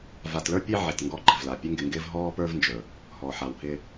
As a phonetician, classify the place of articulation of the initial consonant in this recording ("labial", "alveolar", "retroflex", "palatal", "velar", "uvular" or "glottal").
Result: labial